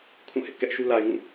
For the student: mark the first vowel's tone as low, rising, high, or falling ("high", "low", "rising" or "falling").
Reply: falling